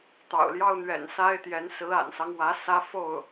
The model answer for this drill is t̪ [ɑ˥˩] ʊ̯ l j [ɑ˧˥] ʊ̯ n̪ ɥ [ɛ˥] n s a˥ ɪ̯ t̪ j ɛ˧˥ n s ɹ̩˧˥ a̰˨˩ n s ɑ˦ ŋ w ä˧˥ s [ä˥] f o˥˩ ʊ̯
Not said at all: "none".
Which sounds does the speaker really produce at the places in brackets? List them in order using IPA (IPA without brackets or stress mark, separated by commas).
ɑ̰˨˩, ɑ˥, ɛ̰˨˩, ä˥